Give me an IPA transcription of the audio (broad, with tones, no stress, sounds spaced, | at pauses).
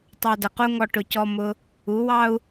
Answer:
tˤ ɑ˧ d ə˨ q u˦ ŋ ɔ˧ ʈ ʊ˧ c ɔ˦ m ʊ˧ | u˨˦ w ɑ˦ u̯